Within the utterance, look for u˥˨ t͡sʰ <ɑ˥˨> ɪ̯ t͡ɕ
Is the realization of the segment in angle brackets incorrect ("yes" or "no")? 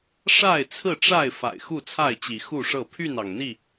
yes